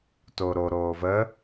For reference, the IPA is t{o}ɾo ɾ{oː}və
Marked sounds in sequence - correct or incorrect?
correct, correct

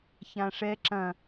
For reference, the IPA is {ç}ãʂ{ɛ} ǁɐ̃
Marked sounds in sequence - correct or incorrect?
correct, correct

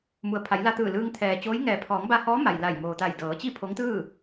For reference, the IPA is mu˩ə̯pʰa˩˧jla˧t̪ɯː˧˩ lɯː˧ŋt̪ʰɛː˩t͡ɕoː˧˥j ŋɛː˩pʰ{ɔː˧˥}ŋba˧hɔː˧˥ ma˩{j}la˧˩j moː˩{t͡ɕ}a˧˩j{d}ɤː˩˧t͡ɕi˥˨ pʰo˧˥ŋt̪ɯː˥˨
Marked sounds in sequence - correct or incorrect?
incorrect: ɔː˩˧, correct, incorrect: t̪, correct

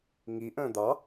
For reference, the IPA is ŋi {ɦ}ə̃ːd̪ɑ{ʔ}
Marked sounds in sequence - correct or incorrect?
incorrect: ʔ, incorrect: none

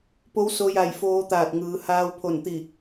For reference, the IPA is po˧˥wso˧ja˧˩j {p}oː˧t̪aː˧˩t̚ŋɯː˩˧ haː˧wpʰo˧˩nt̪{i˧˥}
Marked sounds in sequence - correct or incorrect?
incorrect: f, incorrect: i˧˩

